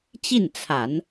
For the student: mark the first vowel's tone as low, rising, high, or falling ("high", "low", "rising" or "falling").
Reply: falling